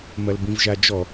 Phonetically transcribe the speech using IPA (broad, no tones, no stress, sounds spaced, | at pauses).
m ɐ l b ĩ v ʒ a d͡ʒ ɔ